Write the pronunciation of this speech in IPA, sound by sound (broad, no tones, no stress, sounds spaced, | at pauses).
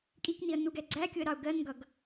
kʼ i k n i ə̯ n u ɡ ɛ ɡ͡ǀ æ kʲ ʊ ə̯ ɾ ɑ ʊ̯ ɡ ɜ n ɡ ʌ ɡ